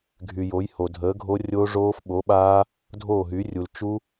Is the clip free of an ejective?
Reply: yes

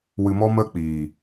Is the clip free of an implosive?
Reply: yes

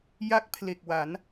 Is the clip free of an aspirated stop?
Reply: no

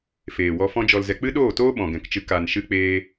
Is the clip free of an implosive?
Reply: no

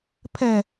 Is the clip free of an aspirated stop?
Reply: no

